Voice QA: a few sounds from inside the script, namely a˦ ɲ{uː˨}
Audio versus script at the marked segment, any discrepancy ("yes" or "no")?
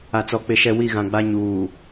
no